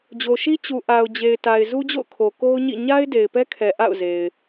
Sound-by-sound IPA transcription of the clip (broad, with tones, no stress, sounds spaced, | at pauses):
d͡ʑ o˨ ʃ i˦ t͡ɕ u˨ ʔ a˨ ʊ̯ d͡ʑ e˨ ɪ̯ t a˨ ɪ̯ z u˦ d͡ʑ o̰˦˨ ʊ̯ kʰ o˨ k o˦ ʊ̯ ɲ ḭ˦˨ ɲ a˦ ɪ̯ d e˨ ɪ̯ p ɛ˦ kʰ ɛ˨ ʔ a̰˦˨ ʊ̯ z e˨ ɪ̯